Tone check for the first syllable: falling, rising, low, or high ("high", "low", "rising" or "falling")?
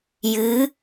rising